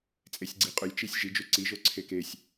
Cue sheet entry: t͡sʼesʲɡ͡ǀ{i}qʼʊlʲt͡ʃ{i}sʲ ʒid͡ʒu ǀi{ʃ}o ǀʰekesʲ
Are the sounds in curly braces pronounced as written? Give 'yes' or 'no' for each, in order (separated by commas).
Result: yes, yes, no